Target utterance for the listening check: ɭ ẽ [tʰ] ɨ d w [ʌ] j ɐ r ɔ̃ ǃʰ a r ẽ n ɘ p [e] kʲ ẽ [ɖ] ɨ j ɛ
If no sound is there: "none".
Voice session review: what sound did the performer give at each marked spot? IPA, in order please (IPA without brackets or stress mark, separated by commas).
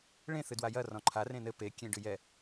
θ, a, e, ɖ